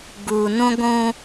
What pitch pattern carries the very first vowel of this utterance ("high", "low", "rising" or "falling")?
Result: low